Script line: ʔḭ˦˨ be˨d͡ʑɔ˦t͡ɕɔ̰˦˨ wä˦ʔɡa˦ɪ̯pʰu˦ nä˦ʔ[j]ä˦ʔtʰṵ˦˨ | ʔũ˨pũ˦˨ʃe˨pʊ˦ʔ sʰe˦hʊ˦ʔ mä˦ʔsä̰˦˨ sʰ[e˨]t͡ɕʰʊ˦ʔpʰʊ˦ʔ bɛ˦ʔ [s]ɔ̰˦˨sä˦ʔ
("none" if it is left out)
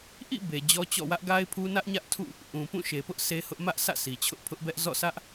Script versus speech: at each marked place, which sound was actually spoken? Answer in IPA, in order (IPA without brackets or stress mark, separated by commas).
ɲ, i˨, z